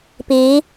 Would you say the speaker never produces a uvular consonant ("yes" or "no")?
yes